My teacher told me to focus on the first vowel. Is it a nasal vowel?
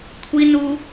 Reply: no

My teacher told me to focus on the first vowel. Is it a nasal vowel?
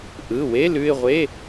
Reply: no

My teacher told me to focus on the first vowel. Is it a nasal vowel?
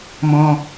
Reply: yes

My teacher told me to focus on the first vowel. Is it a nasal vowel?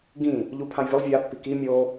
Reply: yes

